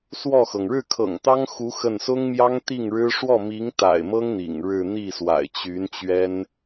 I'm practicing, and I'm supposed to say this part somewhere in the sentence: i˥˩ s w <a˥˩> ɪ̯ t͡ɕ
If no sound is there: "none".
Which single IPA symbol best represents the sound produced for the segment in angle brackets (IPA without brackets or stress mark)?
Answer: a̰˨˩